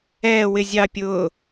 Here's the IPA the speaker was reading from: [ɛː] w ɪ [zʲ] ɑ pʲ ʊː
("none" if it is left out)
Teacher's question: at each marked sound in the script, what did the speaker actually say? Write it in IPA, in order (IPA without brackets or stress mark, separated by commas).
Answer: ɛː, zʲ